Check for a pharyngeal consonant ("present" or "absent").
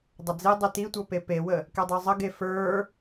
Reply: absent